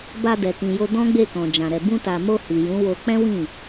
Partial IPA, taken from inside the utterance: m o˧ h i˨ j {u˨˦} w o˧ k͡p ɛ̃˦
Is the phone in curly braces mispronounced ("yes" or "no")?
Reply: yes